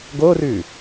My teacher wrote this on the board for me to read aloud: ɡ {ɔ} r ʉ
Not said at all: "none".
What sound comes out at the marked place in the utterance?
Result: o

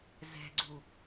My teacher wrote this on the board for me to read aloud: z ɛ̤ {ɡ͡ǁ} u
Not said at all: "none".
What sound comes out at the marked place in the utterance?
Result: ɡ͡ǀ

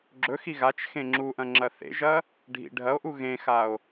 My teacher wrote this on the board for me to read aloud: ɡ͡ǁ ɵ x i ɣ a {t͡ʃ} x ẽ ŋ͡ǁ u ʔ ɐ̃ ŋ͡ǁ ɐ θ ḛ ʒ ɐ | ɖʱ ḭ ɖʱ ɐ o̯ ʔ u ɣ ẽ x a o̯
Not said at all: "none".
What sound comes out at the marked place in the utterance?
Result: t͡ʃ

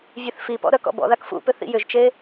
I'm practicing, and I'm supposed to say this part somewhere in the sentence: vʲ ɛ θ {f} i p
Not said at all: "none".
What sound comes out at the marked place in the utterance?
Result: f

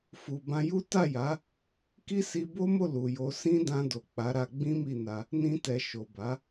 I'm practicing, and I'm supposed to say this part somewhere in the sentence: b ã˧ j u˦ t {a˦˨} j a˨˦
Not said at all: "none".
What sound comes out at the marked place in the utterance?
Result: a˦˨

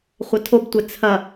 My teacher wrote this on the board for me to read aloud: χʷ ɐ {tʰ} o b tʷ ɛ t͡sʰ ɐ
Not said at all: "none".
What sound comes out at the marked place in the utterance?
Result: tʰ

